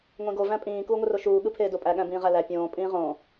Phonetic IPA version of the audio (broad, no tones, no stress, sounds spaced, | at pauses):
ŋʷ ẽ ɡ o v æ̃ pʼ ĩː k uː ŋʷ ɯ r o ʃ uː ɠ ɯ pʰ eː d o pʼ æ ɠ æ̃ b ĩː ʁ æ l æ pʲ õː pʼ ĩː ʁ õː